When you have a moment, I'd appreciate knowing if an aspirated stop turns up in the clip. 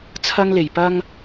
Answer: yes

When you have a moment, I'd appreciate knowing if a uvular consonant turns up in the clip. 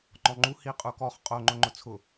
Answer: yes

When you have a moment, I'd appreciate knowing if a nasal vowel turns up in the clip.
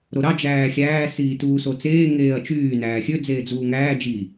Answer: no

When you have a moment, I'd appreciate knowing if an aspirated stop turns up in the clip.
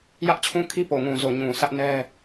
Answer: yes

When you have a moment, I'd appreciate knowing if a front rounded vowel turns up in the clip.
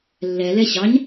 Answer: no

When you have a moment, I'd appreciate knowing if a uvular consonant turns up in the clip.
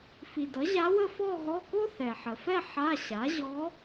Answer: no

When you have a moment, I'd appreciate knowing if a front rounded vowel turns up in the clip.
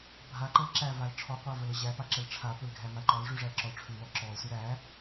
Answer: no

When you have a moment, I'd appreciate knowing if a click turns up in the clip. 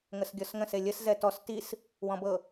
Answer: no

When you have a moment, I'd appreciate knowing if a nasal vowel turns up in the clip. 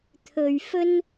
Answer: no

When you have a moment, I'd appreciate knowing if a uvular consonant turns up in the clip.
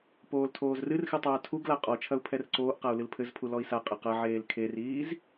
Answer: yes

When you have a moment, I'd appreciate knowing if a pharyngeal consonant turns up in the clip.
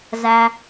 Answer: no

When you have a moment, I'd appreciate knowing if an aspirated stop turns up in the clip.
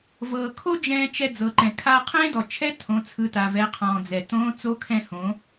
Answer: yes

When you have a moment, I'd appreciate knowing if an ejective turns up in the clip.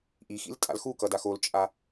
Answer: yes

